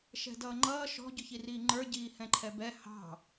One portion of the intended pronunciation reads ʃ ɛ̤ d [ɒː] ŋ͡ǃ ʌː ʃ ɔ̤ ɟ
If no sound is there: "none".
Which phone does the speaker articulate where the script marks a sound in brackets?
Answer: ʌː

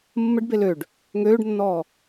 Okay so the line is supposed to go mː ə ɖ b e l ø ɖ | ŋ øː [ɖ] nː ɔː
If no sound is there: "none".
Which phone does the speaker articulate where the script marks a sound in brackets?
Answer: ɖ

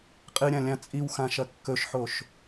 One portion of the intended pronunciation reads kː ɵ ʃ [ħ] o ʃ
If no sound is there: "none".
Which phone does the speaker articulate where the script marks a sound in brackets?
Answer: ħ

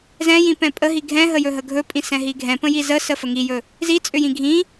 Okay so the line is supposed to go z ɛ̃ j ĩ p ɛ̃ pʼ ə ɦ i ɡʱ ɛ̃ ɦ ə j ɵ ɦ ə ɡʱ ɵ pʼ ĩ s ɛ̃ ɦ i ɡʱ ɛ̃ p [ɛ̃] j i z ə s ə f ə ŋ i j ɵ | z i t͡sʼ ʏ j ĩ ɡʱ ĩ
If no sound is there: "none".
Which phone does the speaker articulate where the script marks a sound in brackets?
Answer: ə̃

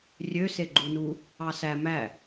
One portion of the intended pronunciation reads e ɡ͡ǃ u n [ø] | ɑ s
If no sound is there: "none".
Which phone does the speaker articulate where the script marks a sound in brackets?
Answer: u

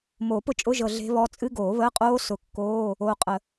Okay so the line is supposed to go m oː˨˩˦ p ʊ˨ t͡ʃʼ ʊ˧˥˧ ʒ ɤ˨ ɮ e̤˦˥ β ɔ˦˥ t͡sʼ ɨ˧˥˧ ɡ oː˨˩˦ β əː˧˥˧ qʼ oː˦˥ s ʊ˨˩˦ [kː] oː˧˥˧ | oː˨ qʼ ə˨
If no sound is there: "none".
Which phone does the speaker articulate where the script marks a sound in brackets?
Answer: kː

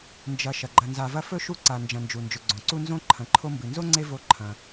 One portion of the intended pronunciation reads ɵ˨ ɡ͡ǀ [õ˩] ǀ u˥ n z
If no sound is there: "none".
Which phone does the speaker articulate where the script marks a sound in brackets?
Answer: õ˩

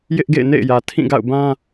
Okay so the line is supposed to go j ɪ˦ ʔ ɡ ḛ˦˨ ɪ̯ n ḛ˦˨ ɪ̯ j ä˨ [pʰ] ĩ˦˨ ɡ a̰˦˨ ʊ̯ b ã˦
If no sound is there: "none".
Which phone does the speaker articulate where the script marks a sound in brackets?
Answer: tʰ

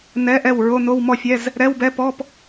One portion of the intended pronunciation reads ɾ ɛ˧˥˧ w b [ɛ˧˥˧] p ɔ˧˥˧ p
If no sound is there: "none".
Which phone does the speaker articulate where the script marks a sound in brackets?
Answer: ɛ˧˥˧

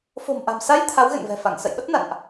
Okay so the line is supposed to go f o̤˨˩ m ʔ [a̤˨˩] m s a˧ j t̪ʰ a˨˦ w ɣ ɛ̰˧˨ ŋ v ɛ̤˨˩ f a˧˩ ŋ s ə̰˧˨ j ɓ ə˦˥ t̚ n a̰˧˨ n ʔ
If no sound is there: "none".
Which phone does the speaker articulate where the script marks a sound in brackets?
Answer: a̤˨˩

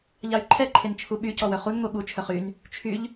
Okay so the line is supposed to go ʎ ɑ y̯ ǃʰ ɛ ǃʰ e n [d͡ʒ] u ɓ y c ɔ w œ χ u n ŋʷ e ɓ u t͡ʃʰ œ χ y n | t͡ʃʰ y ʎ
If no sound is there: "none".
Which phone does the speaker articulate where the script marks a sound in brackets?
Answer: t͡ʃʰ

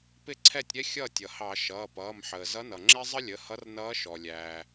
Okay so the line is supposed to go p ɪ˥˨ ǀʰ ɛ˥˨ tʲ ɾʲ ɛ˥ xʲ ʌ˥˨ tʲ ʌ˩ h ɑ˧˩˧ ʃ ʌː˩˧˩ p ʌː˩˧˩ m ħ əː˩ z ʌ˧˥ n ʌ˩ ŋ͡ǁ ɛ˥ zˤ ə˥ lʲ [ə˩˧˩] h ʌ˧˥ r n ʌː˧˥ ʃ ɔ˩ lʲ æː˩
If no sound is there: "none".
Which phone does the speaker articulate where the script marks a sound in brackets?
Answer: ə˩˧˩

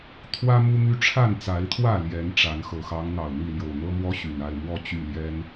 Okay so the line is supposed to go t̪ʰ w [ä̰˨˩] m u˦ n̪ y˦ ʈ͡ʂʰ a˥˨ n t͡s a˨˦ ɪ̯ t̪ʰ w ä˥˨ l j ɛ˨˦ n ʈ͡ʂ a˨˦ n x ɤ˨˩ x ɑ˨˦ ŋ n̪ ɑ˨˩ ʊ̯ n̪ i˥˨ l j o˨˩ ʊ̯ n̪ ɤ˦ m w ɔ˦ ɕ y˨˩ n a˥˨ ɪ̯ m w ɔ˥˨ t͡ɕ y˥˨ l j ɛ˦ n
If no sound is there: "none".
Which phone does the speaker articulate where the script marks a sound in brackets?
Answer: ä˦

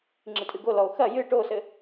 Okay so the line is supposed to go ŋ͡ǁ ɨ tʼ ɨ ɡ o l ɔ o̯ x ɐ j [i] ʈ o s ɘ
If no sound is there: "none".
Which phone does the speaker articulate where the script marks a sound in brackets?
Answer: ɨ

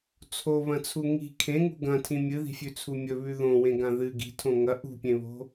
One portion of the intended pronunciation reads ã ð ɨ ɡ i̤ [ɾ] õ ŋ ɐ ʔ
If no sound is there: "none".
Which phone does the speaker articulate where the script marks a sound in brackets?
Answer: tʰ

